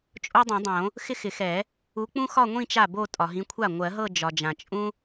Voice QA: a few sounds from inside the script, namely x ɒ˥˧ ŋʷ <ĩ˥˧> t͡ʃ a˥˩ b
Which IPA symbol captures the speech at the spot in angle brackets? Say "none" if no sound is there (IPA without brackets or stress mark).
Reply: ĩ˥˧